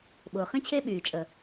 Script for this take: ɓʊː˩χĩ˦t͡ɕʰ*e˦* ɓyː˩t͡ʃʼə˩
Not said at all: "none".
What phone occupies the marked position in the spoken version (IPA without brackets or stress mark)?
e˦